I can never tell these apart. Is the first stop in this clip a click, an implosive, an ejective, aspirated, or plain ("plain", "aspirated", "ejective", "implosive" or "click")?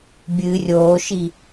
plain